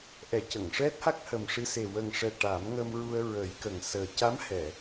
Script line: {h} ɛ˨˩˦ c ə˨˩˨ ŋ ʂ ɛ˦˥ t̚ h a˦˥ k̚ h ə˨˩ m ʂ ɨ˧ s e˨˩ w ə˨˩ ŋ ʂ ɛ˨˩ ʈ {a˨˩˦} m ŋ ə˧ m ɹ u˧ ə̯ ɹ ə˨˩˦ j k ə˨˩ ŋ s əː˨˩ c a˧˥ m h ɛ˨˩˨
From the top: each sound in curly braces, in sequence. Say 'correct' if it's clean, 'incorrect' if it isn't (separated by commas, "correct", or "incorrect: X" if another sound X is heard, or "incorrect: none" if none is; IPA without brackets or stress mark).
incorrect: ʔ, correct